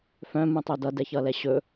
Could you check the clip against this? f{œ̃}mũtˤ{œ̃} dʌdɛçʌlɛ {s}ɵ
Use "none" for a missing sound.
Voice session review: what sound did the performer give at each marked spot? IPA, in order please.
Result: œ̃, œ, ɕ

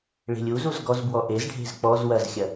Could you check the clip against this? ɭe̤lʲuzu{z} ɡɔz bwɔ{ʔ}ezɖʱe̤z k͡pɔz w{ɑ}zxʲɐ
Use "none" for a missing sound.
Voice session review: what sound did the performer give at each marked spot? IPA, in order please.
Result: z, ʔ, ɐ

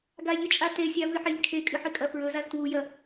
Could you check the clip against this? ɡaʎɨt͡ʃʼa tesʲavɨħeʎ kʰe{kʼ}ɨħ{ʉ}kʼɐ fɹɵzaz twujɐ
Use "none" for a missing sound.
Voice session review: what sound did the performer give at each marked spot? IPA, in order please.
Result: kʼ, ɨ

